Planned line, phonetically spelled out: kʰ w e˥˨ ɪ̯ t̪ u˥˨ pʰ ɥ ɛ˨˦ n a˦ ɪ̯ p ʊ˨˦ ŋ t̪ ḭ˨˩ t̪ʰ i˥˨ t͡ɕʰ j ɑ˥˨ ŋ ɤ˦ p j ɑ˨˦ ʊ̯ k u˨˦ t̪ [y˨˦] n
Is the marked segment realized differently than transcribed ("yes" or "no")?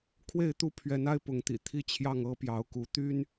yes